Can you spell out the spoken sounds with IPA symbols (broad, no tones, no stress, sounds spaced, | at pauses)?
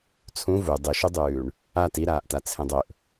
t͡sʰ ũ v u dˤ ɨ ʃ u dˤ ʉː ɳ | a t i ɾ aː ʔ t a t͡sʰ ẽ dˤ ɵ ʔ